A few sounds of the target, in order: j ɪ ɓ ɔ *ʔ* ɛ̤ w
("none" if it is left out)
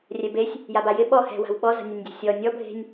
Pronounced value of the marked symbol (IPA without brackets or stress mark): h